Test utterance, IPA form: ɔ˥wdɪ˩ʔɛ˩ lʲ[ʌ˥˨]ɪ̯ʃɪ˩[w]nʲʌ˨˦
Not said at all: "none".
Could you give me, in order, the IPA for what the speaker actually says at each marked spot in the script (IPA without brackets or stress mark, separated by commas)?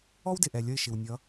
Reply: ʌ˥˨, w